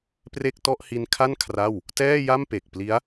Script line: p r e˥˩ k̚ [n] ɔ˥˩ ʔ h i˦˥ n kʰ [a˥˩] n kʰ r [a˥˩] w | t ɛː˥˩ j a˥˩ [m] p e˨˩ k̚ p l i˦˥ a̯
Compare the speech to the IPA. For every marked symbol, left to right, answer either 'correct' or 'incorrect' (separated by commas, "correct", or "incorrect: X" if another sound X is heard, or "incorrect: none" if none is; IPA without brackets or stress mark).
incorrect: t, correct, correct, correct